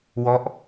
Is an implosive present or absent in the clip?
absent